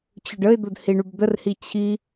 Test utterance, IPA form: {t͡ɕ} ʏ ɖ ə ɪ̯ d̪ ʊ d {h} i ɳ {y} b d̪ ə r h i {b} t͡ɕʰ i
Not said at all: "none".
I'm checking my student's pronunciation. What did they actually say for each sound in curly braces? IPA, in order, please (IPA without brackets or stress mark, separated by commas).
t͡ɕ, h, y, none